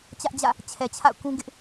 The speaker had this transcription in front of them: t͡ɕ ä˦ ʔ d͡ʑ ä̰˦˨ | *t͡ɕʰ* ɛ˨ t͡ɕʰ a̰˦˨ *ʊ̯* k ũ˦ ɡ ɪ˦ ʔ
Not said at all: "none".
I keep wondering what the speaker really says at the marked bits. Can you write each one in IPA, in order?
t͡ɕʰ, ʊ̯

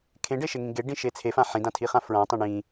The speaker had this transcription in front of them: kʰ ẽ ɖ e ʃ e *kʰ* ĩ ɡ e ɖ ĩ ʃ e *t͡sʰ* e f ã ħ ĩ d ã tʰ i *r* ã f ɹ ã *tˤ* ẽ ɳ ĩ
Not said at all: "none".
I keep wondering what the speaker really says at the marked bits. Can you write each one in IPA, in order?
ŋ, t͡sʰ, χ, tˤ

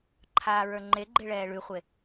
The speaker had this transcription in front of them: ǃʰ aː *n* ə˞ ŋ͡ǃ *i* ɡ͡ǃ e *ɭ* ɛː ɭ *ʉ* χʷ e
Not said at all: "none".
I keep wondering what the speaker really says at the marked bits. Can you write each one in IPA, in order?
ɹ, e, ɭ, ʉ

